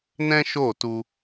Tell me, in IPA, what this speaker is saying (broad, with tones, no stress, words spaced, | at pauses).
nɛ̃˦ʃo˦˨tu˧